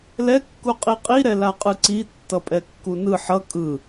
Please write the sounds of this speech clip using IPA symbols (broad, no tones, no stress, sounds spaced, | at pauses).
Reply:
l ɛ kː u qʼ i qʼ i ɾ ɛ l a qʼ ɯ ǀ i tː ʌ pʼ ɛ kː u n ɯ ħ ʌ kʼ ɯ